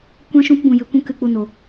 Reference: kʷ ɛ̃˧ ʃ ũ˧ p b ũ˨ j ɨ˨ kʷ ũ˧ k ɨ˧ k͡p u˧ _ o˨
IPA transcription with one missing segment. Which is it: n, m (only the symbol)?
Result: n